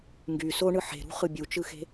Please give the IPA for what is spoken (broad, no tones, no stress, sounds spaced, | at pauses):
ŋ ɡ y s o ɳ ɯ ħ e̤ ɾ ṳ χ ɯ bʲ u t͡ʃ ɯ x e̤